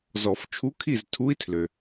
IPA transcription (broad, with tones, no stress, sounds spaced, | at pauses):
z ɔ˨˩˦ f t͡ʃʰ u˧˥ kʰ i˦˨ z tʰ u˧˥ i̯ tʰ l ø˩